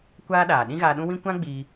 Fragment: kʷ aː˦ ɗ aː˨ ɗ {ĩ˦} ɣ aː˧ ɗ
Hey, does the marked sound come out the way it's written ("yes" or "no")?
yes